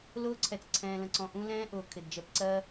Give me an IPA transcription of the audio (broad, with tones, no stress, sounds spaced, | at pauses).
l ʊː˧ ǀʰ ɛ˨ t͡s ǀʰ ɛ̃ː˨ l ə̃˨ ǀ ɔ̃˨ ʔ ũ˧ l ɛ̃ː˦ ʔ ʊː˨ kʰ ɪ˨ d d͡ʒ ɛ˧ p ǀ ɜ˦